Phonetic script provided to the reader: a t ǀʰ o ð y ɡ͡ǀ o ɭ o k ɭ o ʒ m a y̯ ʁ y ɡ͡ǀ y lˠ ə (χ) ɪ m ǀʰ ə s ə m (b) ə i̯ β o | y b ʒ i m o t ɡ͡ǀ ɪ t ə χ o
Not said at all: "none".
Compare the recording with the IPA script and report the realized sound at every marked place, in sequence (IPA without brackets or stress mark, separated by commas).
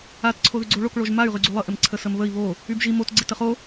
ʔ, β